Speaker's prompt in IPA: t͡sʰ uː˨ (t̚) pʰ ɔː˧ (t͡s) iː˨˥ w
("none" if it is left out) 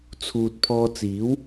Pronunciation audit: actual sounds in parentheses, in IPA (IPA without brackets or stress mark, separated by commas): t̚, t͡s